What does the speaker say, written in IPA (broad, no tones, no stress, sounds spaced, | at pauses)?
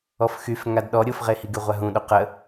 ɔ f x y f ŋ a d ɗ ɔ ɾʲ o f ʁ e h i ɡ y ʁʷ a ɦ ũ ɗ o q ə